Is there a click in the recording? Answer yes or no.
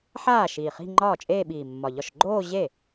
yes